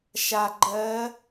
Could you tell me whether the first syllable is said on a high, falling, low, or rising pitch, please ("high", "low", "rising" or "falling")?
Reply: low